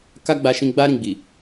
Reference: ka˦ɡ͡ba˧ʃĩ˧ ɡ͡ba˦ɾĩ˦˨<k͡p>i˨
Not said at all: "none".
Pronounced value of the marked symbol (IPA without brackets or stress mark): ɡ͡b